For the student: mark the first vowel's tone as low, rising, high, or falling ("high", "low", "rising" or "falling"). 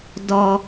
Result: low